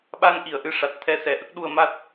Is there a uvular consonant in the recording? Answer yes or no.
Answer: no